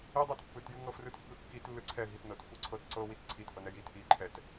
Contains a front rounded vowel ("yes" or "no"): no